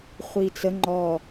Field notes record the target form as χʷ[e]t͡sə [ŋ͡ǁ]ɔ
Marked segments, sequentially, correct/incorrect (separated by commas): incorrect, incorrect